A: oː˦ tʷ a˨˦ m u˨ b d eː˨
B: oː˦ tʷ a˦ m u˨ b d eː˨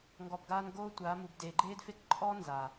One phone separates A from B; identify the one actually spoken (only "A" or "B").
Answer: A